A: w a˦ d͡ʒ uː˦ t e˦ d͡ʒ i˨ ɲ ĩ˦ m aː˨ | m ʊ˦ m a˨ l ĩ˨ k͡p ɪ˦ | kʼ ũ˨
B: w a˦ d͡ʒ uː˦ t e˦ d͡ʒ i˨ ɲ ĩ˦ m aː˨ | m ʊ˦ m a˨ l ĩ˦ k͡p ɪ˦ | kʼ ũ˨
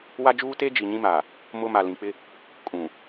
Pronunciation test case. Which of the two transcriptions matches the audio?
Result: A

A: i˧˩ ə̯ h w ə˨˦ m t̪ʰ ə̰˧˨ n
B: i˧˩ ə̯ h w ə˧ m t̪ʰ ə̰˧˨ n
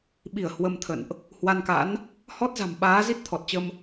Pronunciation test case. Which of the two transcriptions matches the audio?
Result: B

